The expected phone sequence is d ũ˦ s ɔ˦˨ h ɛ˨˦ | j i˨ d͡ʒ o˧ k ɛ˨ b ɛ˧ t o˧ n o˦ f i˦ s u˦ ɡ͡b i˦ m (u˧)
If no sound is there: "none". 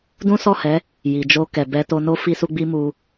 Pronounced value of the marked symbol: u˧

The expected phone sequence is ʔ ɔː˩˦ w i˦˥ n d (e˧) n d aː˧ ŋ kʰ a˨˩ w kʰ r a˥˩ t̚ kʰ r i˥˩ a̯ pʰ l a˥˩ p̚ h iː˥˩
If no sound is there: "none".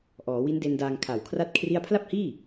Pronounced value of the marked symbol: e˧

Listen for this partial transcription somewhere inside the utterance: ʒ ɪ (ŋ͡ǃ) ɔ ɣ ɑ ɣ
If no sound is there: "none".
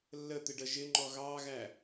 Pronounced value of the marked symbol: ŋ͡ǃ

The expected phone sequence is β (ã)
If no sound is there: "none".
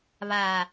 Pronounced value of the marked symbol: a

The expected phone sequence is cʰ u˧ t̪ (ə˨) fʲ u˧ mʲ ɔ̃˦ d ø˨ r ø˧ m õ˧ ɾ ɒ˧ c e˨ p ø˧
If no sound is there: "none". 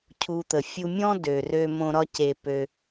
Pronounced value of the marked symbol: ə˨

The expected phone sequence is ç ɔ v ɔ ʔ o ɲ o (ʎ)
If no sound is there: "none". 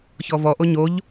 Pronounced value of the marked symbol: ʎ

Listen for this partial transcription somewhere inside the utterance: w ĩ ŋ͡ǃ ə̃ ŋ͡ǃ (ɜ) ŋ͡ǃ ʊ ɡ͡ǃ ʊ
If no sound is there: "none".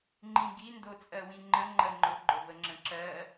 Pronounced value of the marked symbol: ɜ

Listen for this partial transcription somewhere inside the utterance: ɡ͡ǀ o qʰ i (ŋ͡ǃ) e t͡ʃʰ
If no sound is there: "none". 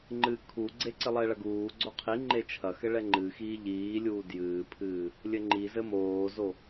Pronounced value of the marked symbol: ŋ͡ǃ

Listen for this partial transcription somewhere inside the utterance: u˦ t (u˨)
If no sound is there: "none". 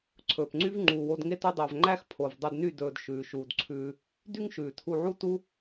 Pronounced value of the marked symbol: u˦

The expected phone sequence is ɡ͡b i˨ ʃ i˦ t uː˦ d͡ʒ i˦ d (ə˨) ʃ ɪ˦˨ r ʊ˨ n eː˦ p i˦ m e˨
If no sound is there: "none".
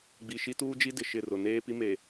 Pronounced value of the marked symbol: ɪ˨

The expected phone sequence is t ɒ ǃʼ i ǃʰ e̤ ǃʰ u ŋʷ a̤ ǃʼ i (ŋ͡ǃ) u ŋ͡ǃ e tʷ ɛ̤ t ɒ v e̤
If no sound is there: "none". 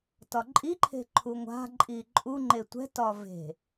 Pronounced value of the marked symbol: ǃʼ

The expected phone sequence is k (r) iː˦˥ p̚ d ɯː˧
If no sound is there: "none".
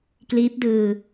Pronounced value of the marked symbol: l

